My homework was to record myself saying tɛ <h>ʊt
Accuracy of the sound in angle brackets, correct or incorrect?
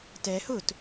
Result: correct